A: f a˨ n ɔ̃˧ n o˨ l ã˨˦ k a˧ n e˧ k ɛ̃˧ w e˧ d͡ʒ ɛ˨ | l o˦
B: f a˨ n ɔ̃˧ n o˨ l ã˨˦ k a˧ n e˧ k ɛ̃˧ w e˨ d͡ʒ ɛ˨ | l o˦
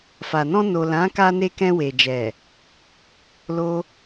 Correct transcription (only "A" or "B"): B